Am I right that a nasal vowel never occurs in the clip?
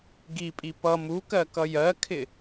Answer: yes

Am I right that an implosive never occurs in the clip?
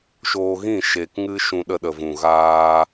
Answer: no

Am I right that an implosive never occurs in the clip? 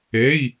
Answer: yes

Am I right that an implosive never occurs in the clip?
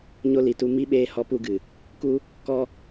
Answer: no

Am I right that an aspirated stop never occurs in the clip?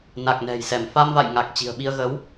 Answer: yes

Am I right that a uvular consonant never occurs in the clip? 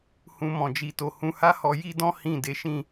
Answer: yes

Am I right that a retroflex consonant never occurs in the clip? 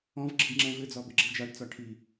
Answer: no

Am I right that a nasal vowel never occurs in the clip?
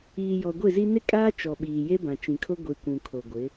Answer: no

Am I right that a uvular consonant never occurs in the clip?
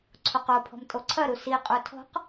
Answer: no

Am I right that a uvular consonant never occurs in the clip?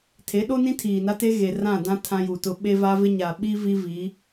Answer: yes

